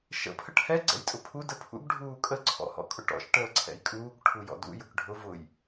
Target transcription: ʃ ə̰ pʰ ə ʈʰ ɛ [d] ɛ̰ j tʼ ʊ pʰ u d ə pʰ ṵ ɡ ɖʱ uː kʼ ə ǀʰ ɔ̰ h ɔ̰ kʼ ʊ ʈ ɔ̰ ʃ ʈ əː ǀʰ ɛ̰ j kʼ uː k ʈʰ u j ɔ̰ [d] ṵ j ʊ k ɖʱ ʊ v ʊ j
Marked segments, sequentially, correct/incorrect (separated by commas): incorrect, correct